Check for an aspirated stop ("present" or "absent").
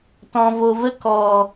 absent